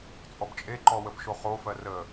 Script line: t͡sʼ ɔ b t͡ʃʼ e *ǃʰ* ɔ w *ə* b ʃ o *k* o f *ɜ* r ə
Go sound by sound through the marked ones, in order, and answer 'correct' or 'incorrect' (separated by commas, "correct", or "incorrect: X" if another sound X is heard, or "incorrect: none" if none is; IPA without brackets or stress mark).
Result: incorrect: ǃ, correct, incorrect: χ, correct